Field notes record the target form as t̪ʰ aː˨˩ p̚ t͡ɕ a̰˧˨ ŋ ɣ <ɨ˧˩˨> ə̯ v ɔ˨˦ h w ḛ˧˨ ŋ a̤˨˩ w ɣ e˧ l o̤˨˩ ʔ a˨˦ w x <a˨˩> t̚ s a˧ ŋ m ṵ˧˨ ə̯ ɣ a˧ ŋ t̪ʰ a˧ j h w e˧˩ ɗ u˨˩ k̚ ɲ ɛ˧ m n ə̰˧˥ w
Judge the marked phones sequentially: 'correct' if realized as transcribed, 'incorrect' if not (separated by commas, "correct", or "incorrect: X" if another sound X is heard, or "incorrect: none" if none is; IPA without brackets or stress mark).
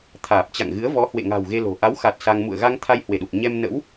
incorrect: ɨ˨˦, correct